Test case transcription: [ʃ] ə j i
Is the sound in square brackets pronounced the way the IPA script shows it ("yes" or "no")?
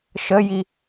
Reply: yes